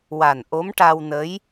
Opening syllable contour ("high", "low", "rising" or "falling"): low